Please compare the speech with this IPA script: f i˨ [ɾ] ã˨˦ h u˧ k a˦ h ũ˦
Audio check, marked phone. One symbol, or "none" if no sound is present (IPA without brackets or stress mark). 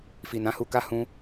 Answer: n